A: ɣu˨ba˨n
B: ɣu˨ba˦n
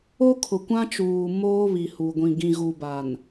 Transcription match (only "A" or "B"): A